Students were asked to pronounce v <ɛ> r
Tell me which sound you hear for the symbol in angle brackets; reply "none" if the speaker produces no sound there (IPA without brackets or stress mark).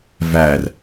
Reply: æ